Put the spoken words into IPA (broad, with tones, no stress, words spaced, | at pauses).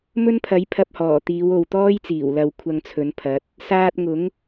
mɵ˥npʰɐ˨˥j pʰɐ˧p̚hɔː˨˩ t̪iː˨˧wo˨wt̪ɔː˥jt͡siː˨˩w lɐ˨w kʷʰɐ˧ŋt͡sʰɵ˨˧npʰɐ˨˥t̚ | saː˧t̚ŋʊ˨˥ŋ